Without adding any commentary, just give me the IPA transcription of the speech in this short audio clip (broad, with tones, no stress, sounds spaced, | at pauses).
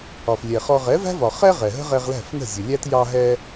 ɒ˩ f lʲ ɛ˩ χ ɔ˧ ʁ ɛ˩˥ v æ̤˥ v ɒ˩ χ ɛ˥ ʁ ɛ˩ ɦ ə̤˥ ʁ ɛ˧ ʁ l æ̤˥˩ f n ə̤˥˩ zʲ ə˩ lʲ æ˥ t j ɑ˧ ɦ ɛ˧